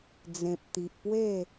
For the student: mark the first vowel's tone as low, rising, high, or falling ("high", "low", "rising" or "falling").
low